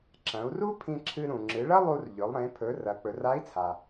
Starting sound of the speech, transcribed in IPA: ǁ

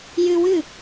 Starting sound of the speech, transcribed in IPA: j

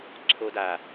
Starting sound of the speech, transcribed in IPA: ǀʰ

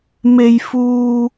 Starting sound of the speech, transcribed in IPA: m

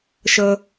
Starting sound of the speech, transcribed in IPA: ʃ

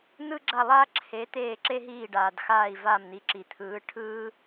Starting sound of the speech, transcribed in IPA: n̪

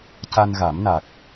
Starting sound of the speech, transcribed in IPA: c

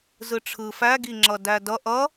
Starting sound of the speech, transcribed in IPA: z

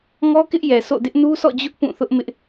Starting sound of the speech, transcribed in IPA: ŋ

